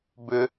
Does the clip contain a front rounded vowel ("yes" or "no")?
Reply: yes